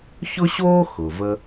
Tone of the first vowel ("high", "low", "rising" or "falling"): high